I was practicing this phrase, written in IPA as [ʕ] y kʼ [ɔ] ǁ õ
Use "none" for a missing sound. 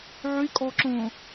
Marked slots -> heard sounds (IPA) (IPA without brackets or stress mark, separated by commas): ʕ, ɔ